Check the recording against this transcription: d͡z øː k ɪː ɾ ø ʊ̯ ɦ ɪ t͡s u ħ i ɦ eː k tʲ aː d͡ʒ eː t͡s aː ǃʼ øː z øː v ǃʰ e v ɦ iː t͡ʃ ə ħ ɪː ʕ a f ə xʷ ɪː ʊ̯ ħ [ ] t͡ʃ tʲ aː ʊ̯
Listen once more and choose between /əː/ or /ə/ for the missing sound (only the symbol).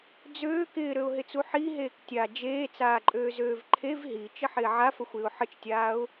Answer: ə